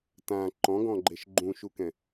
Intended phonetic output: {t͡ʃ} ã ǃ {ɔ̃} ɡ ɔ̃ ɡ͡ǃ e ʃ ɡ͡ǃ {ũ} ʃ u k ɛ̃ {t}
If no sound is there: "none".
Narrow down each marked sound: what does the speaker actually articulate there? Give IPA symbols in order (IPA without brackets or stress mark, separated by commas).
t, ɔ̃, ũ, none